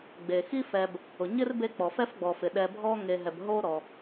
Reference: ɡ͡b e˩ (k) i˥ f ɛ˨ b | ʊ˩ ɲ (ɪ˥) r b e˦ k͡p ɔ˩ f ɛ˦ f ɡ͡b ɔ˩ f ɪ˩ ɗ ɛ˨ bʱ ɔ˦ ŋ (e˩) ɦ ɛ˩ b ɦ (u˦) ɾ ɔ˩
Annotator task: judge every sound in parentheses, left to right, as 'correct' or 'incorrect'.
incorrect: x, correct, incorrect: e˨, incorrect: o˦

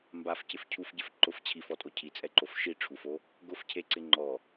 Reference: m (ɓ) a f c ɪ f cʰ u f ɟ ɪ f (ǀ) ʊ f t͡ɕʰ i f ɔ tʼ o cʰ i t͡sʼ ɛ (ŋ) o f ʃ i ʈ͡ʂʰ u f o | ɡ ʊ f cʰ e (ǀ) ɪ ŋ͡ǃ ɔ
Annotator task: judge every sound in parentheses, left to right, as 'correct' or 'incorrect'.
incorrect: b, incorrect: ǃ, incorrect: ǃ, correct

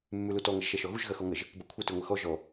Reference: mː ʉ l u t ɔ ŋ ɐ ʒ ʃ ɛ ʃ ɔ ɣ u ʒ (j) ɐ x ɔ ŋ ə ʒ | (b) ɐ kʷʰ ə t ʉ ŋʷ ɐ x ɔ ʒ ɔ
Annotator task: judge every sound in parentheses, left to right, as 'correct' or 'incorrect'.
incorrect: ɣ, correct

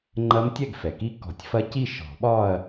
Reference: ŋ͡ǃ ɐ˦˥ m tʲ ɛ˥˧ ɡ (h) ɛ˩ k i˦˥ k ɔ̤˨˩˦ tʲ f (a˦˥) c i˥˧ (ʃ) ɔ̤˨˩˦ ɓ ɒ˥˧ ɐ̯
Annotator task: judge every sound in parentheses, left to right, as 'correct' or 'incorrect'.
incorrect: f, incorrect: ɐ˦˥, correct

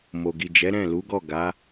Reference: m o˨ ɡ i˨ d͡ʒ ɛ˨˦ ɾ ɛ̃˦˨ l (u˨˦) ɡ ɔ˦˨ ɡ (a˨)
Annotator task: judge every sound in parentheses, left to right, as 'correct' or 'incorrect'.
correct, incorrect: a˨˦

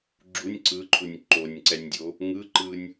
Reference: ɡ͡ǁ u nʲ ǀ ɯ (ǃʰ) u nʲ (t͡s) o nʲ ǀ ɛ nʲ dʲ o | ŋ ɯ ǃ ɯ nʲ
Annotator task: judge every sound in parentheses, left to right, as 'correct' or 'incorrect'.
correct, incorrect: ǃ

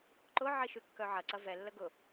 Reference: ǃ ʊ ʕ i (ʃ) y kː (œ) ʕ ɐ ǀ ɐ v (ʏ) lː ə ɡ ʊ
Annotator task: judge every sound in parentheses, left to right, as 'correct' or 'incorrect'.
correct, correct, incorrect: ɛ

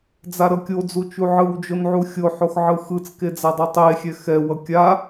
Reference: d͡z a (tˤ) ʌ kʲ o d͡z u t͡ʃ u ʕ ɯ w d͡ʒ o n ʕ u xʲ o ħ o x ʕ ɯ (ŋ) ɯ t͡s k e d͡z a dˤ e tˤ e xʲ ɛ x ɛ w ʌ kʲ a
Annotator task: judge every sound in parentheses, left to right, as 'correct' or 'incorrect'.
incorrect: ɾ, incorrect: x

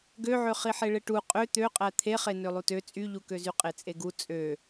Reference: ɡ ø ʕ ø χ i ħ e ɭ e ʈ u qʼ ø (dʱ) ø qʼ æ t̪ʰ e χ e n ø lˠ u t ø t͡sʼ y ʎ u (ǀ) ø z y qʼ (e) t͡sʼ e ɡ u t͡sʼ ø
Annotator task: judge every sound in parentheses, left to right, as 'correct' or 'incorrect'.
incorrect: t̪, incorrect: k, correct

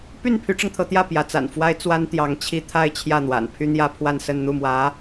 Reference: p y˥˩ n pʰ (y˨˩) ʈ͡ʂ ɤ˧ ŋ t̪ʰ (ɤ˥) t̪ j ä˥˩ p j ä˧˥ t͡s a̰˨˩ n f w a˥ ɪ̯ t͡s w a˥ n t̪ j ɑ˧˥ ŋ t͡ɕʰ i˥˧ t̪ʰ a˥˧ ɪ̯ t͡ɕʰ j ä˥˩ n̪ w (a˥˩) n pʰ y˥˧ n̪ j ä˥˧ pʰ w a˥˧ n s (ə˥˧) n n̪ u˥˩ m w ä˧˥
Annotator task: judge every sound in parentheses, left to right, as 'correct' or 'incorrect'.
incorrect: y˧˥, incorrect: ɤ˧˥, incorrect: a̰˨˩, correct

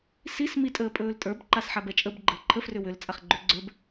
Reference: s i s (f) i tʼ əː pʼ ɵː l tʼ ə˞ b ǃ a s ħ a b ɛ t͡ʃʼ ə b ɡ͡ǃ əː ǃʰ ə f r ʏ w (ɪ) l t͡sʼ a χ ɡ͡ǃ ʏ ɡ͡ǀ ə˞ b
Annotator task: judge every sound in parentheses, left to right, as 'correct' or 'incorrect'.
incorrect: m, incorrect: ʏ

